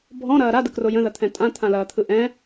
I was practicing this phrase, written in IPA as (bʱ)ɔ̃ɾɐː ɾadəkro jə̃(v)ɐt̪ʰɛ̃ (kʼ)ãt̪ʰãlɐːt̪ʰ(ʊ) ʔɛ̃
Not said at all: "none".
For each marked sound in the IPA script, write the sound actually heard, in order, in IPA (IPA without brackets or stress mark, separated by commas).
bʱ, ð, tʼ, ɯ